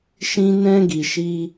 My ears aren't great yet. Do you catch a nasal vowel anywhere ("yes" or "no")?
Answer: yes